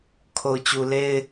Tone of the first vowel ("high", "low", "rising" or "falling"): low